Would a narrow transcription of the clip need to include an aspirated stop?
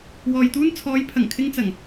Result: yes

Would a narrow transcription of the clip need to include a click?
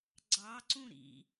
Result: yes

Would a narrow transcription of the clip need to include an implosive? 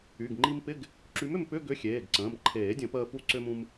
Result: no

